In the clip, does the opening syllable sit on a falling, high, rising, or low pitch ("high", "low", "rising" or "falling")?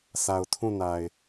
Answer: low